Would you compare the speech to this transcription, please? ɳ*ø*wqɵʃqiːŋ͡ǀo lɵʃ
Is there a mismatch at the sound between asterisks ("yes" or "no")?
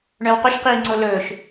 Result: yes